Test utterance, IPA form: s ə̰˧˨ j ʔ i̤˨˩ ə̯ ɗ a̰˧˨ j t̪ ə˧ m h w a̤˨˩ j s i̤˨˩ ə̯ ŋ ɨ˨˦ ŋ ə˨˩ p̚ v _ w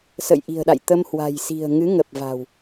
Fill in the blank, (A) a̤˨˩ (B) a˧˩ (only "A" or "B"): A